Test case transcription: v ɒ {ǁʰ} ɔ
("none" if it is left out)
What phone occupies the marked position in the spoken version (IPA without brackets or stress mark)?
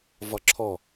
ǁʰ